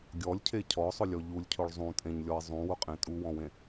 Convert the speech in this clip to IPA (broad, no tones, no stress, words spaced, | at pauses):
ɡʲɔlʲcʰe cʰɔsˤʊlʲɔ ʎulʲcʰʊɭ zˤũtʼẽɲlʲɔɪ̯ zˤũwʊqʼẽ tʼuwɔ̃wẽ